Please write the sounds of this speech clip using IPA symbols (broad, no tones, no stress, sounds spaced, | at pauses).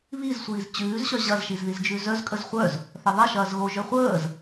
β i z sʷ iː z t͡ɕ ʉː z ɕ œ ʑ ɐ z ʃ i z ð i z d͡ʒ ʉ z œ z kʼ ə z χʷ œ z | θ ɐ ðˤ ɐ ʃ ɐː z ɣ o ʒ œ χʷ əː z